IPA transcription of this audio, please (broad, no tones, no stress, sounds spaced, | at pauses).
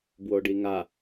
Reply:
b w o ɖ i ŋ a